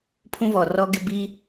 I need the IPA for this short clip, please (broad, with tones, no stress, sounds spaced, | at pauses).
pʰ ũ˦ v ɔ˨ r ɔ˦ ɡ ɪ˦ b i˦